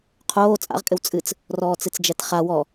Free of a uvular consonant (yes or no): no